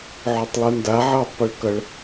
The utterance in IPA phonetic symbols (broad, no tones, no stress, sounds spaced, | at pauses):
ʕ o tˤ lˠ u n d a ʕ ʌː tˤ p ɛ ɭ k ʌ ɭ